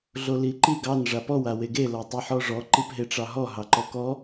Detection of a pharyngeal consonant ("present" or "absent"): present